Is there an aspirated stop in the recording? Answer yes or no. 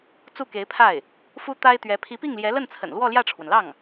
yes